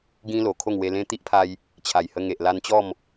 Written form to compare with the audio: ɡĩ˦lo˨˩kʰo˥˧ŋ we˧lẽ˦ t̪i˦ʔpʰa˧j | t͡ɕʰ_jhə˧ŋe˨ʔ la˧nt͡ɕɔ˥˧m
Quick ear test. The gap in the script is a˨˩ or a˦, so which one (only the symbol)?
a˨˩